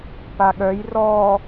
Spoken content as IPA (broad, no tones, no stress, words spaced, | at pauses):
paɠœj rɔ